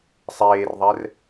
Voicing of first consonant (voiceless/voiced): voiceless